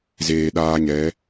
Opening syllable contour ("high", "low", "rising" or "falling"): low